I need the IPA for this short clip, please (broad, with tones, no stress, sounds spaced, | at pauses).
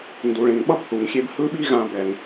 n d u˩ ɭ ẽ˩ ŋ ɓ ʌ˥ b θ u˩ ŋ xʲ e˦ b h ɯ˦ ɓ i˦ ɣ ã˨ b ɛ˩ ŋ